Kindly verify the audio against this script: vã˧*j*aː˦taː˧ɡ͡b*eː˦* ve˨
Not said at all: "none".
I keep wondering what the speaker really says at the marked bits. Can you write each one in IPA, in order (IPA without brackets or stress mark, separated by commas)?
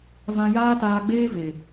j, eː˦